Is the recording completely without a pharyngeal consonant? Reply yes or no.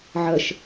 no